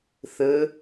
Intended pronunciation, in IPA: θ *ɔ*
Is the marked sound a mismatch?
yes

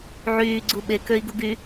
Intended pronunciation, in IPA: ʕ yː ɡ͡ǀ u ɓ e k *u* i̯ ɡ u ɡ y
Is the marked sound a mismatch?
yes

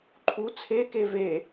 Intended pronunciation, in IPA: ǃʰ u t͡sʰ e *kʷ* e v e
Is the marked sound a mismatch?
yes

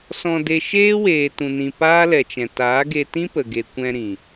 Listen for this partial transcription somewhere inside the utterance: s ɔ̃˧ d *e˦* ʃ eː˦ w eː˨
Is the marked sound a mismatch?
yes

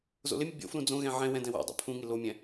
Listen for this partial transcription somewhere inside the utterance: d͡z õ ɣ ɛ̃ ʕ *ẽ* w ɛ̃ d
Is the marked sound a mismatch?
yes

